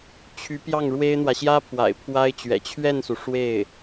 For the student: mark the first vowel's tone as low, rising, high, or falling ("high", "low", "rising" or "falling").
rising